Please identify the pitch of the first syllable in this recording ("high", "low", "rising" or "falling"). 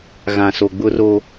low